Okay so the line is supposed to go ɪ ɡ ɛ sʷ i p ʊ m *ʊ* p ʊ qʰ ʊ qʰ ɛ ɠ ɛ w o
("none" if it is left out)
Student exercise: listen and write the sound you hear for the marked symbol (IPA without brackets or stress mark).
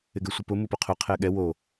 u